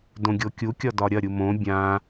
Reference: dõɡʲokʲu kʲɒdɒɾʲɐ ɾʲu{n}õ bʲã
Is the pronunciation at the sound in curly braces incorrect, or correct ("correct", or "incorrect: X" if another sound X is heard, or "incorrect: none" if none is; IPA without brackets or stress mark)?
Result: incorrect: m